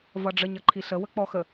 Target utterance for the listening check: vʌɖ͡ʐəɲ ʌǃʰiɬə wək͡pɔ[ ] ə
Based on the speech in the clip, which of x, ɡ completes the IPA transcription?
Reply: x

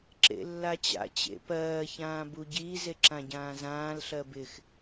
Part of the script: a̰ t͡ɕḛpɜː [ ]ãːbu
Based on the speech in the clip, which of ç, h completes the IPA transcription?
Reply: ç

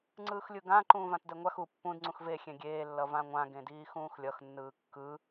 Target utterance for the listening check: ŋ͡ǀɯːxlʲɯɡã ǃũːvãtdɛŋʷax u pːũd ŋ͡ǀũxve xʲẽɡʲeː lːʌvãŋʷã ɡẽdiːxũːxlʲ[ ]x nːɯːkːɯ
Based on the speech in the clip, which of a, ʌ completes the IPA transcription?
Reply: ʌ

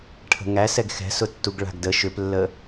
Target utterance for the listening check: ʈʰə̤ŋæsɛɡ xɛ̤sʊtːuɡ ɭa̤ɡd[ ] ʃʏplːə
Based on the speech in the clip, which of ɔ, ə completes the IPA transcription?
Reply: ə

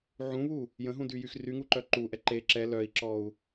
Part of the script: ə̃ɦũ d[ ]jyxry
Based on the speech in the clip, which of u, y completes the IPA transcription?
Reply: y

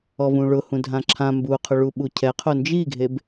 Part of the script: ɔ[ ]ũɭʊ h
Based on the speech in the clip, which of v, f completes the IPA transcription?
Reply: v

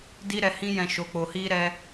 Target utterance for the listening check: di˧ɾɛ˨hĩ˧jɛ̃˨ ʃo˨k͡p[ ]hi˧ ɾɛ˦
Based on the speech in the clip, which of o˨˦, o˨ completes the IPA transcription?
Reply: o˨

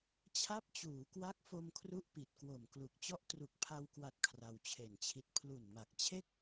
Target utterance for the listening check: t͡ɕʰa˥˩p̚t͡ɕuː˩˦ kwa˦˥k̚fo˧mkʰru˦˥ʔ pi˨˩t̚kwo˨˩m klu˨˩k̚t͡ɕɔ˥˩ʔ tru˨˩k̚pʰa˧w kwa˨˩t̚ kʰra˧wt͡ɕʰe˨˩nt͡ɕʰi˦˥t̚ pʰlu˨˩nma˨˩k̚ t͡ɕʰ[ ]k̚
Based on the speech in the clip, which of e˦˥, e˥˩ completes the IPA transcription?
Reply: e˥˩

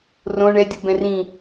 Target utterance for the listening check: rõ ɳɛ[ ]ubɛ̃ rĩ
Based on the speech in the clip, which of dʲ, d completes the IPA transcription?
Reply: dʲ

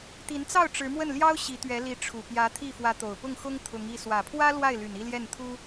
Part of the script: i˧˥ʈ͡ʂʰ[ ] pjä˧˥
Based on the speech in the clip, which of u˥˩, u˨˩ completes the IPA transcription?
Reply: u˨˩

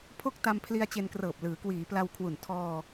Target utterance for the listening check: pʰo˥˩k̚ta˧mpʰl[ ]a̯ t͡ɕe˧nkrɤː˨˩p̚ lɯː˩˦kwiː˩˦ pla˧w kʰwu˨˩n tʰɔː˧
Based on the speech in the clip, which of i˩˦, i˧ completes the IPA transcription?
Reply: i˧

